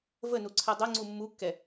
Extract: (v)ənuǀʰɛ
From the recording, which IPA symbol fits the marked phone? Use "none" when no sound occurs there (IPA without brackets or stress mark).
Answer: v